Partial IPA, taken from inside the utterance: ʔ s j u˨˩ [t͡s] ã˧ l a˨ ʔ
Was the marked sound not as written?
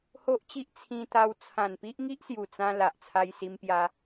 no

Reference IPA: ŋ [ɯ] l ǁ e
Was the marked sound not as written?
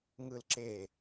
no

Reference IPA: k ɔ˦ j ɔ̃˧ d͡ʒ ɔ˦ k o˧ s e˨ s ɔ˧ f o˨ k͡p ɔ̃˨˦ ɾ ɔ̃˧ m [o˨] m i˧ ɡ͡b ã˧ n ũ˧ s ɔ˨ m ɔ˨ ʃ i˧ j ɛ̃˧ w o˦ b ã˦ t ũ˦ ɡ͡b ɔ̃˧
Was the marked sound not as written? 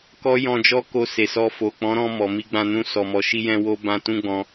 yes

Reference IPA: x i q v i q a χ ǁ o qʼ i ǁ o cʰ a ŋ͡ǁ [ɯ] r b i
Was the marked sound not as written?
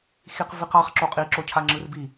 no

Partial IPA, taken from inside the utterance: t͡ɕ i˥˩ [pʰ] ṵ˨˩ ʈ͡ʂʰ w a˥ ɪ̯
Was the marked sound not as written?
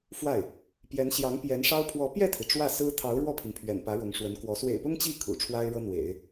yes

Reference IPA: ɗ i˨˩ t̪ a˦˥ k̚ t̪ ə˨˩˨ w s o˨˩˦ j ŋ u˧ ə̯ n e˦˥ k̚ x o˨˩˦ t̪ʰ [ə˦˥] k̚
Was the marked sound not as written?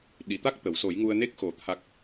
yes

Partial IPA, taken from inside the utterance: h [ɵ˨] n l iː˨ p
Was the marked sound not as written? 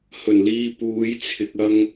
yes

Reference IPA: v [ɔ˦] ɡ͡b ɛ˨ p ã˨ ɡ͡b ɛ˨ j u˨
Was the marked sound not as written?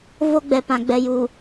yes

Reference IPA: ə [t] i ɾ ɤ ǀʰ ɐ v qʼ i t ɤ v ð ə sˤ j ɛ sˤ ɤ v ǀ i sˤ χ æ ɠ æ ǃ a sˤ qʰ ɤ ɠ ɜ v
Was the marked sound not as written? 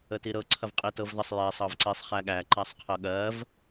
no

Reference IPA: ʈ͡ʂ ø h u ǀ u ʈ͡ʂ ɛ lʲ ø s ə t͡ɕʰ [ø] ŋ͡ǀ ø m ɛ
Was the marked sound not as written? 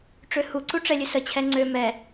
yes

